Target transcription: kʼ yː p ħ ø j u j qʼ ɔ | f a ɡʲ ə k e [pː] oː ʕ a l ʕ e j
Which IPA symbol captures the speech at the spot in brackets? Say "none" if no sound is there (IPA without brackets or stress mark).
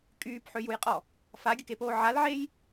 p